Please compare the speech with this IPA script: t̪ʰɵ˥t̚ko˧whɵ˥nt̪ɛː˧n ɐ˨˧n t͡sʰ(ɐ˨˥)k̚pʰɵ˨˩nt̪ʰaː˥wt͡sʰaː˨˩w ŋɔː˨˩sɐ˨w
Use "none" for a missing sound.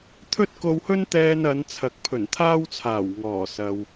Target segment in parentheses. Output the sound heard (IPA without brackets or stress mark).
ɐ˨˥